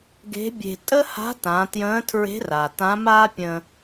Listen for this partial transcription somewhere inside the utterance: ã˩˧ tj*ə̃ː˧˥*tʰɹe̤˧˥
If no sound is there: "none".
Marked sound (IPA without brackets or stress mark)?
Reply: ə̃ː˧˥